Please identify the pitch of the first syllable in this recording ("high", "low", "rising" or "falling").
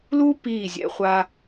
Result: high